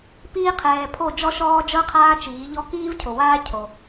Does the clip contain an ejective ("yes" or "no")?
no